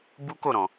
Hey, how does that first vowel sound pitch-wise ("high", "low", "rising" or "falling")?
high